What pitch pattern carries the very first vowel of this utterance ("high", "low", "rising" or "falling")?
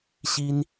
high